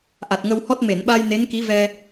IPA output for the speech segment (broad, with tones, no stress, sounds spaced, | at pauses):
ʔ a˨˩ t̚ ŋ ə˧ w h ɔ˦˥ t̚ m e˨˩˨ n ɓ a˧ j n e˧˥ n k i˧˥ v ɛ˧